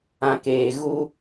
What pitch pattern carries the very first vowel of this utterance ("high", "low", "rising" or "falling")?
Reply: low